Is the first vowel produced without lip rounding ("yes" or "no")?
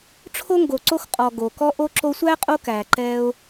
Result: no